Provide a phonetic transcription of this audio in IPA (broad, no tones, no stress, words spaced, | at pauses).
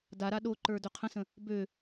daɾa ɗoǃə˞ døqʰə̃sə̃ | bø